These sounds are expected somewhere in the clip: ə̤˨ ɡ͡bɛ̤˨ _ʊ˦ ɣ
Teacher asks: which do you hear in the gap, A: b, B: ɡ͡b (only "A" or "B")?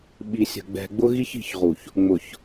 B